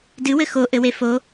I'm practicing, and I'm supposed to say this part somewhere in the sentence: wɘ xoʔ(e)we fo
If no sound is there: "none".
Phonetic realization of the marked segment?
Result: ɘ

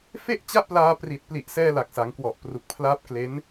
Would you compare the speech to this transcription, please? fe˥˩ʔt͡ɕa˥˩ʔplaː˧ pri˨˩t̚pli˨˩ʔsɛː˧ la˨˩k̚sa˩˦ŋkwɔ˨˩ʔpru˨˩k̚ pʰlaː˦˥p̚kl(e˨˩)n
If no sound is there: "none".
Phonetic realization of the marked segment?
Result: e˦˥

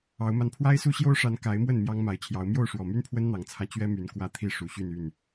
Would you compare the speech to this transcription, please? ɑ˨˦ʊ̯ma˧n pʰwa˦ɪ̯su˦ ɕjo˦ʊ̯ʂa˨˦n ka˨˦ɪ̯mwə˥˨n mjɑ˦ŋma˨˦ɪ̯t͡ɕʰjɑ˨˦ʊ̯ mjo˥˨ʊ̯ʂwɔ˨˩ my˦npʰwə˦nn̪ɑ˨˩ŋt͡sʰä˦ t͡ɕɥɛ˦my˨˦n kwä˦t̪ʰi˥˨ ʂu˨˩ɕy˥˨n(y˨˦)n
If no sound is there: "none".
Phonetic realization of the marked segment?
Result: y˥˨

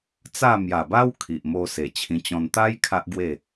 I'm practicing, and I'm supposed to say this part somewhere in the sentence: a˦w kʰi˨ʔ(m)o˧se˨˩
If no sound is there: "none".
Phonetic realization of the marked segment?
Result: m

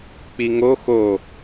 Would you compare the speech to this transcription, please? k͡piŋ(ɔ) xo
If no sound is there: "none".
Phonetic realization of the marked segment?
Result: o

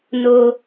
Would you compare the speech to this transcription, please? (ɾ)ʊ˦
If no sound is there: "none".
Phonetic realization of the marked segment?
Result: n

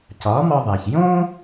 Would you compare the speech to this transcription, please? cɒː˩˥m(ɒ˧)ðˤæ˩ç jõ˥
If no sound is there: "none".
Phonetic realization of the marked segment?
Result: ɒ˧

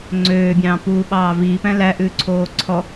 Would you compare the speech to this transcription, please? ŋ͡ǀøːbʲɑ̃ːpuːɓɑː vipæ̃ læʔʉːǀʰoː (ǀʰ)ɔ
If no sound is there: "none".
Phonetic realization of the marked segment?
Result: ǀʰ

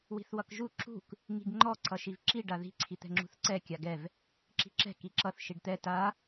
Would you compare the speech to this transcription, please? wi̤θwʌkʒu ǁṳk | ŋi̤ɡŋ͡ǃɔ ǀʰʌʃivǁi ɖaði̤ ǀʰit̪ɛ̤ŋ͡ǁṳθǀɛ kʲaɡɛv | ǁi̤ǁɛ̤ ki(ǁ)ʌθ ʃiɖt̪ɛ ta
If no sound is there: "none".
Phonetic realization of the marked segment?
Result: ǁ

